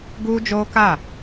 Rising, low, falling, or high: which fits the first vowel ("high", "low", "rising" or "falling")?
high